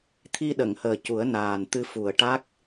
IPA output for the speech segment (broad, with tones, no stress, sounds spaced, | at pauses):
t̪ʰ i˧ ɗ ə˨˩˨ ŋ h əː˨˩ c u˨˩˦ ə̯ n aː˨˩ n t̪ ɨ˧ f u˨˩ ə̯ ʈ a˦˥ k̚